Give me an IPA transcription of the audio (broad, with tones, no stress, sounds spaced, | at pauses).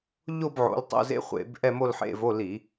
ʎ o˥˧ b ʕ o̰˨˦ l tˤ o̰˧˥˧ z ḛ˦˥ χʷ ḛ˧˩˧ b ʔ ɛ˥˧ m o˥˧ l ħ ḛ˧˥˧ v o˧˥˧ l i˧˩˧